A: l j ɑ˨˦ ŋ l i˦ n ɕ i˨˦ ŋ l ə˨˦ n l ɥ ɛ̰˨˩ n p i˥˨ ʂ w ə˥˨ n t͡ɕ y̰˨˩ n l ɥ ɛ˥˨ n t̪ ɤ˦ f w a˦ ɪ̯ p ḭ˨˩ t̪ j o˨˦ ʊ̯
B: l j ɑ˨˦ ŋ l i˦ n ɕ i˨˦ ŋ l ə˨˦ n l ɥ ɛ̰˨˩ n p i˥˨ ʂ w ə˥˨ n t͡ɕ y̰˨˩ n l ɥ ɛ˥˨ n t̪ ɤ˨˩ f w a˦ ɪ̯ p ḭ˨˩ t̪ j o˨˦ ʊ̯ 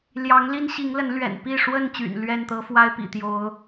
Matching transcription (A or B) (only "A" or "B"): A